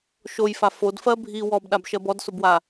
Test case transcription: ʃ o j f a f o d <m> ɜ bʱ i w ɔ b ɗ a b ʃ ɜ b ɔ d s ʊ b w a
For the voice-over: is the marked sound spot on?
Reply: no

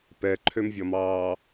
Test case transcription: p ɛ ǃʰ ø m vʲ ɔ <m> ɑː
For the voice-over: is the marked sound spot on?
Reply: yes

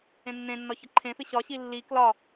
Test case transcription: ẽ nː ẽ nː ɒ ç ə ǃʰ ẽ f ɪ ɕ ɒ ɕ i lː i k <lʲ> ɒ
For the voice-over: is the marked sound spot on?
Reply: no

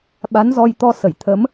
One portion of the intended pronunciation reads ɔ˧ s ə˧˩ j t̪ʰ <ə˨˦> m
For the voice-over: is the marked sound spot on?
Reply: yes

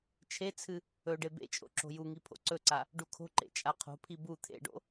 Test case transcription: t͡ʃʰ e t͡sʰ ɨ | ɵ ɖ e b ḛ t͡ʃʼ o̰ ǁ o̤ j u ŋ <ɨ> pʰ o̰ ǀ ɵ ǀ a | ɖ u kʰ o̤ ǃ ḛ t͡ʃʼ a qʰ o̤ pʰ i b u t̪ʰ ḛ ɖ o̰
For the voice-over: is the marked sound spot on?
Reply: no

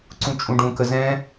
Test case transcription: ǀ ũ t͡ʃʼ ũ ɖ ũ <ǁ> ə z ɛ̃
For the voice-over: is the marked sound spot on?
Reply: no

